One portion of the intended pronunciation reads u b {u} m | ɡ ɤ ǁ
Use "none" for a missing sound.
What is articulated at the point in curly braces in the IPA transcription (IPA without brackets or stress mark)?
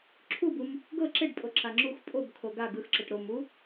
u